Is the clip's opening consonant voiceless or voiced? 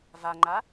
voiced